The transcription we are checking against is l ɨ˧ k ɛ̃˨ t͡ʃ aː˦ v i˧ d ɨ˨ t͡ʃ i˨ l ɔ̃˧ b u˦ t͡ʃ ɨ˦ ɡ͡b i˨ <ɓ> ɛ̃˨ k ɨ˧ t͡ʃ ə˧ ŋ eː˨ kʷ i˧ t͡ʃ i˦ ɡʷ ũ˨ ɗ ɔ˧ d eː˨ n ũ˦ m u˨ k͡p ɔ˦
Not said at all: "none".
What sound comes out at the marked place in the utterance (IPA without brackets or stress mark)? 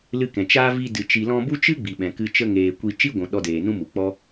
ɓ